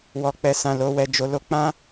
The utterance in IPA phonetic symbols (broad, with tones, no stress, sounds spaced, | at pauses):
w ɔ˧ k͡p ɛ˧ s ã˧ l o˧ w ɛ˧ d͡ʒ o˧ l o˦ k͡p ã˦